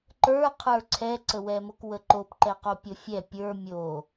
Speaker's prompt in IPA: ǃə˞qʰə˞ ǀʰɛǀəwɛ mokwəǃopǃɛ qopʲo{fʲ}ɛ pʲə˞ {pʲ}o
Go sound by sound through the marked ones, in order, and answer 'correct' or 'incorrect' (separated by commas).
correct, incorrect